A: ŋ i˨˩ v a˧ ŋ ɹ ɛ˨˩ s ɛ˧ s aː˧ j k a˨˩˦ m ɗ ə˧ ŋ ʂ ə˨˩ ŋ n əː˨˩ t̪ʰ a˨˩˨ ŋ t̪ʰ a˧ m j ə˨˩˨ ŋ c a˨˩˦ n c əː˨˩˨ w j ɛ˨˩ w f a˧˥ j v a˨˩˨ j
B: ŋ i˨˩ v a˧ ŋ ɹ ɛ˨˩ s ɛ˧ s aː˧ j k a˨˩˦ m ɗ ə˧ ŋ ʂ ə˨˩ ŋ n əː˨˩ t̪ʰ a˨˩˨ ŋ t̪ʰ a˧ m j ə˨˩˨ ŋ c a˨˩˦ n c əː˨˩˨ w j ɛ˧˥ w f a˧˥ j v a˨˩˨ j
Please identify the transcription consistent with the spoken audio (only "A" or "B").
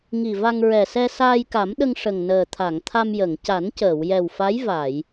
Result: A